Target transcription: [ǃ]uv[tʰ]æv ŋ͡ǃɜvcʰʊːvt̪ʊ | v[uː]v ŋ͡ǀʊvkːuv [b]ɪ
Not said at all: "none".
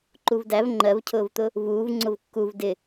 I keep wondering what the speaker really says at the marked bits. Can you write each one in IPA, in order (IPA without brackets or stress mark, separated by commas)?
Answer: ǃ, d, uː, d